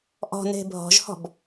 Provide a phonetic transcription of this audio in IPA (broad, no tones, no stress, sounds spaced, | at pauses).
ʔ ɔ̤ n e̤ bʱ ɔ̤ ʒ h ɔ̤ b